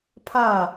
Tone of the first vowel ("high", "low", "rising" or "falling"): falling